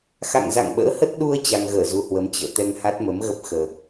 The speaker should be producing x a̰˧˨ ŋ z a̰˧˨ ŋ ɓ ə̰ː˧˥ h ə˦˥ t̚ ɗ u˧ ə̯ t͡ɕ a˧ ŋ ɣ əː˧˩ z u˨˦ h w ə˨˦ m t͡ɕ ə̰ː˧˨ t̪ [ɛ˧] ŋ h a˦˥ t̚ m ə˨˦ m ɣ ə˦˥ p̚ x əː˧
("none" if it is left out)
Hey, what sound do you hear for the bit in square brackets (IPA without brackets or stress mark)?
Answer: ɛ˧